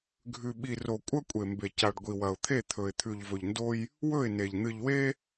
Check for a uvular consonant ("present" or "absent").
absent